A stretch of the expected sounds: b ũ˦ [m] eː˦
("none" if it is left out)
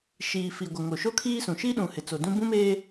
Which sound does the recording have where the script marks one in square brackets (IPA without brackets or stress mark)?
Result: m